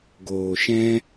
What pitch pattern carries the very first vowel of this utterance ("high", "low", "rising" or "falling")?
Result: low